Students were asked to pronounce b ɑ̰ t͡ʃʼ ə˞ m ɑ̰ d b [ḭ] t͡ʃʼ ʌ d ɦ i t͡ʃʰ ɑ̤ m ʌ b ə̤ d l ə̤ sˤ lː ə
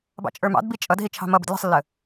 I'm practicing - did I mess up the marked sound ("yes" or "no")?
yes